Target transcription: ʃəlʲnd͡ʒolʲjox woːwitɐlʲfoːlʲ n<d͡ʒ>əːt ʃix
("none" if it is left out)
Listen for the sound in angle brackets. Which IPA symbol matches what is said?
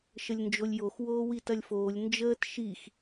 d͡ʒ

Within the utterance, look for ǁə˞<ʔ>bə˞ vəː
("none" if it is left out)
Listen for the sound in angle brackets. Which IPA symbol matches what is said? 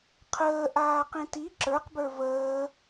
q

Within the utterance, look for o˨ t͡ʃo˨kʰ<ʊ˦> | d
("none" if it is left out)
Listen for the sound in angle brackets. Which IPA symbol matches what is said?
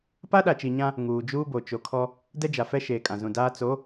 ɔ˦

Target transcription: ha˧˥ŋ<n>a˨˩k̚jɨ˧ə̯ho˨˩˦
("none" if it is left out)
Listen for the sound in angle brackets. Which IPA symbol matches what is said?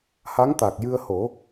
t̪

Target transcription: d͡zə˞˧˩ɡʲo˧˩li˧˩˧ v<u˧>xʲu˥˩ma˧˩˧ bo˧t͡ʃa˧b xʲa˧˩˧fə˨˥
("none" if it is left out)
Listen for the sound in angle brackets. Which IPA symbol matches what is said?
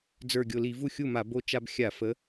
u˥˩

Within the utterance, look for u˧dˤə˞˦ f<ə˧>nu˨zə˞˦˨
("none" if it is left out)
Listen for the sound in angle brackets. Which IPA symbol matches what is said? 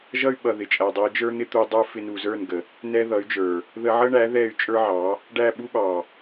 ɪ˧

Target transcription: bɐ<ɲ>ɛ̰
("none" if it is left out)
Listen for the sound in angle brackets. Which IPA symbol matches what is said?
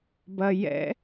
j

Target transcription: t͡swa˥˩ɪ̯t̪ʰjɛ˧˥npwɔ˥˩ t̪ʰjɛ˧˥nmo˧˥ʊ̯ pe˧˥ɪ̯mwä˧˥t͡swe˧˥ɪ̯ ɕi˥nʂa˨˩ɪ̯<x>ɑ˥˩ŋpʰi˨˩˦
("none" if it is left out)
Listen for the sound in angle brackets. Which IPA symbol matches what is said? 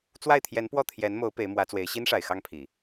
x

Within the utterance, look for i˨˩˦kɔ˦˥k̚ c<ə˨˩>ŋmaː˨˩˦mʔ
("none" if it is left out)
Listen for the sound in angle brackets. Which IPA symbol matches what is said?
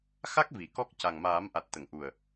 a˨˩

